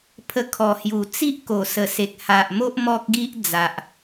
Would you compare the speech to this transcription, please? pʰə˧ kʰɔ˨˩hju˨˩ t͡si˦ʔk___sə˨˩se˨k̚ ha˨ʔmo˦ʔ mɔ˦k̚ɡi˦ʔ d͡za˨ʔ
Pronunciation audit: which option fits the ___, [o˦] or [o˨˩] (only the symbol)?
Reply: o˨˩